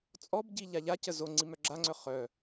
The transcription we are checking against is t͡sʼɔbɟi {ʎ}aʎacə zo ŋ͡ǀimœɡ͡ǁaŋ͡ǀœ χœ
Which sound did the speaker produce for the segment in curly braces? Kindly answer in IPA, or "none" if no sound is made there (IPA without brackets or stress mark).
ʎ